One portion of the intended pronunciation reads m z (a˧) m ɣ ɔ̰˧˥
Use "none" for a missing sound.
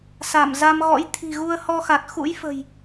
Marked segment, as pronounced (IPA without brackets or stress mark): a˧